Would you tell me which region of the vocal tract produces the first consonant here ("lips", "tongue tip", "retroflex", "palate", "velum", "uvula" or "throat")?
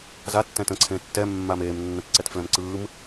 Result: tongue tip